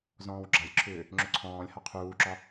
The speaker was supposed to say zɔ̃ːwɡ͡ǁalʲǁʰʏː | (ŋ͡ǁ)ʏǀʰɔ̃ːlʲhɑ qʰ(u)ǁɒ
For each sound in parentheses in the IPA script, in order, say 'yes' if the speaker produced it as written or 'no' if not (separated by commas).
yes, no